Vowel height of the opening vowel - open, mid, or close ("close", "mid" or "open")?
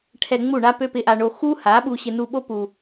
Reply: mid